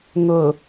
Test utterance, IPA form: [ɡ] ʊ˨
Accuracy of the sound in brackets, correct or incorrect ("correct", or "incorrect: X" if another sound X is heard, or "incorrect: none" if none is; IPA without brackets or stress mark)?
incorrect: ŋ